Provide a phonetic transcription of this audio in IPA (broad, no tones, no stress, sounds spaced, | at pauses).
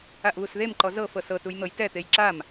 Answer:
a ʔ β u s ð e m ǃ ɔ z ɤ f ɤ s ɤ t u j n̪ ɤ j t ɛ t̪ e j ǁ a m